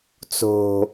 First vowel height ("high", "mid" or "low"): mid